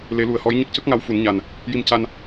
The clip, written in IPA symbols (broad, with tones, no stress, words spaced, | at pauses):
le˨˩˦lu˨˩˨ə̯hɔ˧˥j ɲə˦˥k̚cə˦˥k̚ŋa˧w fu˨˩˦nɲa˨˩n | ji˧mca˧n